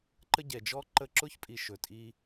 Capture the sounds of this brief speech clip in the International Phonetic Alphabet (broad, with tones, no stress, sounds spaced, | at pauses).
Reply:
ǃ ə˦ ɟ ɛ˨ d͡ʒ ɔ˦ ǃ ə˦˨ ǁ ʊ˦ ç pʼ i˨ ʃ ɵ˨ tʼ i˧